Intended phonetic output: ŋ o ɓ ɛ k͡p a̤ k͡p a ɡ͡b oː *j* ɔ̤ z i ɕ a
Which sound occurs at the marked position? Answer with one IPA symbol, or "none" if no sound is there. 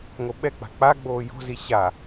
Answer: j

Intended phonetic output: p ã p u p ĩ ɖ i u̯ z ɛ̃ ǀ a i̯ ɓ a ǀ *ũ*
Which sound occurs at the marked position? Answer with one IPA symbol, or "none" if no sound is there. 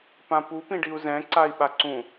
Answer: ũ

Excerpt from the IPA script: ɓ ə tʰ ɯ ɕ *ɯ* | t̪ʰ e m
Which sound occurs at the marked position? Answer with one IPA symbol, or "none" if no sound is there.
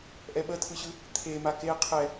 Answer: ɯ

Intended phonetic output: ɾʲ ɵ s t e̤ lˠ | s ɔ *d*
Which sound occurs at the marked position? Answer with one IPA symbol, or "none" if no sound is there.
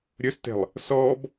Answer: b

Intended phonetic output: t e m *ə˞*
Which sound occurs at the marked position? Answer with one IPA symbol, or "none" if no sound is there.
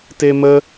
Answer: ə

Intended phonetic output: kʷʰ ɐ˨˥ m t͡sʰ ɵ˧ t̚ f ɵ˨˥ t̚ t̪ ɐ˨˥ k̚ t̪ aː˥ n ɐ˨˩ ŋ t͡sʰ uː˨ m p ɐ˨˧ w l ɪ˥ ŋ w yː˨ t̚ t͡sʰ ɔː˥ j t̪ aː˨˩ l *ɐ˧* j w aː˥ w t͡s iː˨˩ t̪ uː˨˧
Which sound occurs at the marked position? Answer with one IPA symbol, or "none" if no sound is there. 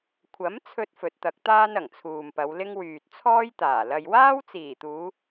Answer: ɐ˧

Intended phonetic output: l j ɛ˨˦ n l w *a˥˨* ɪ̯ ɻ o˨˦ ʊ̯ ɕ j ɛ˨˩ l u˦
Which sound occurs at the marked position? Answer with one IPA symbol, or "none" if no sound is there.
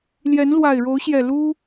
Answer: a˨˩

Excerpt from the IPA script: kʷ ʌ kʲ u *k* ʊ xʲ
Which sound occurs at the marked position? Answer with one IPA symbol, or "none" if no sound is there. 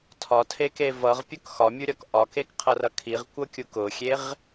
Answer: k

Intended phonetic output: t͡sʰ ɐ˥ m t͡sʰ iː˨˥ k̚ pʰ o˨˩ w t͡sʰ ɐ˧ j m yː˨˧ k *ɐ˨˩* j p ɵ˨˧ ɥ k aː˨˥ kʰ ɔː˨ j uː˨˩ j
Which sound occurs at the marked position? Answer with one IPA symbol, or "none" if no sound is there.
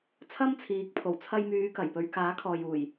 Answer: ɐ˨˩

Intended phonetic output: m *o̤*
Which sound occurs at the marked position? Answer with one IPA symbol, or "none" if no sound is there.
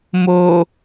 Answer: o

